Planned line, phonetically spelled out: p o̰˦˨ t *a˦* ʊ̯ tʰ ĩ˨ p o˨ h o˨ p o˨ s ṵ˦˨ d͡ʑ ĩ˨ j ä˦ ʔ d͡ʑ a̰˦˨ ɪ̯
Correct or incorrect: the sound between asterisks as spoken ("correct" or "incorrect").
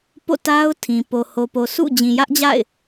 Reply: correct